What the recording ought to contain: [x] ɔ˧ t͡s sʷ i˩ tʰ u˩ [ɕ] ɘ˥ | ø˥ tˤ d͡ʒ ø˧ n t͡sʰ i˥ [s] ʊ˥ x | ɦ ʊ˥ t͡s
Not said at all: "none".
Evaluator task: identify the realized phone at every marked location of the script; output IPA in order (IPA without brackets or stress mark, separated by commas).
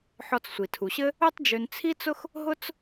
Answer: ħ, ɕ, t͡s